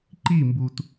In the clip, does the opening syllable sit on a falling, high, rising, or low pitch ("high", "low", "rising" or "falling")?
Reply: falling